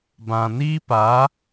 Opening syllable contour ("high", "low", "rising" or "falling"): low